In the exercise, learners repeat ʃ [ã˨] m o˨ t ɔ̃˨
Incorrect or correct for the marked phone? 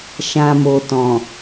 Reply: correct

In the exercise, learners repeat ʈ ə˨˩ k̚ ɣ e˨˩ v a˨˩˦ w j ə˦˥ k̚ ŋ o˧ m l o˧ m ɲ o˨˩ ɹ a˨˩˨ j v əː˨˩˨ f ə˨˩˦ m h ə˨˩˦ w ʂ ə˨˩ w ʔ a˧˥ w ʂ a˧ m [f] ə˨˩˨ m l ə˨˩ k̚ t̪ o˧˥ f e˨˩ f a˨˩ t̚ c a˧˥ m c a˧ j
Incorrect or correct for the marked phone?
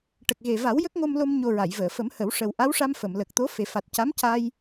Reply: correct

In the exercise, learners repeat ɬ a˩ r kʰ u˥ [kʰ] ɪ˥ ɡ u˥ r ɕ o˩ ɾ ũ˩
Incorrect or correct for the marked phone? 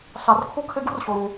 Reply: correct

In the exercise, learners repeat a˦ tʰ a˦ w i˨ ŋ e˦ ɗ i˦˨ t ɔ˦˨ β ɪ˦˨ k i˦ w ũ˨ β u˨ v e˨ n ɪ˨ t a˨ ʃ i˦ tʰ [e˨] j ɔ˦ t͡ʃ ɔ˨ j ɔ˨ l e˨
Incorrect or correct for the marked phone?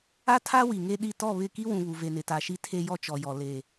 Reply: incorrect: e˦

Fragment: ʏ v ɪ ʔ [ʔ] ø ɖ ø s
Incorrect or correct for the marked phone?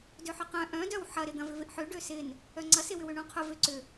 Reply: incorrect: ħ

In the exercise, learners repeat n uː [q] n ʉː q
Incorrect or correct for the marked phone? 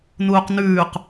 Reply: correct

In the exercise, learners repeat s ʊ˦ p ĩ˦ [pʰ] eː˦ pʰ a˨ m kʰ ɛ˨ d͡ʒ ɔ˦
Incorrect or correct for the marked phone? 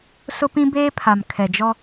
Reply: incorrect: b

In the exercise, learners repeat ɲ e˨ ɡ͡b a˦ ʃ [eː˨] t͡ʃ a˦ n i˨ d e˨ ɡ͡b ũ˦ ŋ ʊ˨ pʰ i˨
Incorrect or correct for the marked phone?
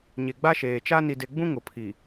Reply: correct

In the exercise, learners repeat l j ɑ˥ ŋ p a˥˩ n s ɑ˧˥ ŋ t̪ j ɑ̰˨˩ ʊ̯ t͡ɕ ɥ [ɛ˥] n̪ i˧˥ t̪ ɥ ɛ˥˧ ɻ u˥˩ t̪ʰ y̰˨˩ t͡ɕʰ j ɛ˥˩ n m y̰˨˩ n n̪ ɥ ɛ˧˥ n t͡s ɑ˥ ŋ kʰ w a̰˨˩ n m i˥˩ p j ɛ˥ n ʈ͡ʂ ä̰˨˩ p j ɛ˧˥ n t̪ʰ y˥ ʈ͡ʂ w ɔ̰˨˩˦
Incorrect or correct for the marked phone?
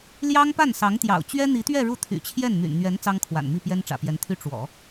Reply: correct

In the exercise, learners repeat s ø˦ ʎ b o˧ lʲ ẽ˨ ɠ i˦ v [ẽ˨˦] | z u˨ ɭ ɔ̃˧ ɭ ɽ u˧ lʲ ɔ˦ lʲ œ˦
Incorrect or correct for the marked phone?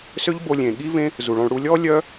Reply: incorrect: ẽ˦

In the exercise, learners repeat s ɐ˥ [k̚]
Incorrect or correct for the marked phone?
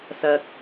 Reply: correct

